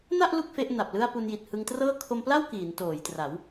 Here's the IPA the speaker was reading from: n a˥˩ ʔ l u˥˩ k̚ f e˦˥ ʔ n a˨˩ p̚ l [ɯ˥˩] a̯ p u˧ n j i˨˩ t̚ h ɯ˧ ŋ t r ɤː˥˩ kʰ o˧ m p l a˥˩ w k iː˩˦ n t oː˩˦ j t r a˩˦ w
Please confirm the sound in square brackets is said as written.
yes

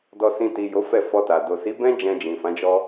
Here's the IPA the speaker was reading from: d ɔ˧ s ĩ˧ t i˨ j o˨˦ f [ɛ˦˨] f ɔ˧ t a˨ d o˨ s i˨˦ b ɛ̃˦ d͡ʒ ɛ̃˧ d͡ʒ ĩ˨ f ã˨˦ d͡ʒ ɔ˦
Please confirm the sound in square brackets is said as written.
yes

